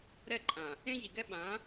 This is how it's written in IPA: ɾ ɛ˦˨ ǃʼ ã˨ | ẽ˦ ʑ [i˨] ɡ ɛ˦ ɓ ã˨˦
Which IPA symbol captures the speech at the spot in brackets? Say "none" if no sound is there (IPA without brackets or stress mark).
i˨